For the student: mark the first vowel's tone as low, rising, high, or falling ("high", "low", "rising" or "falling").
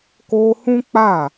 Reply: high